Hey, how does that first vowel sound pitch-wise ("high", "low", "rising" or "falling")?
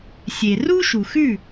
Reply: low